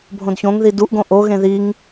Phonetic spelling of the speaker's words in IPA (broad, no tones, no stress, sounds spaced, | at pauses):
bʱ õ d ç õ ŋ ð i d u ʔ ɡ õ ʔ o ɣ ẽ ð i ŋ